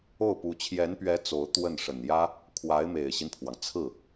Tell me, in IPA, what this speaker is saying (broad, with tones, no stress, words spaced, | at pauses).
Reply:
o˥˩ʊ̯pu˧˥ t͡ɕʰjɛ˧˥npɥɛ˧˥ t͡so˧˥ʊ̯ t̪wə˥˩n ʂə˨˩njä˥ | kʰwa˧˥ɪ̯ me˨˩ɪ̯ɕi˦npʰwɑ˩ŋ t͡sʰɹ̩˥˩